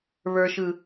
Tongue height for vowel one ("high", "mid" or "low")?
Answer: mid